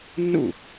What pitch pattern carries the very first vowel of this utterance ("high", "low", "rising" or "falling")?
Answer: falling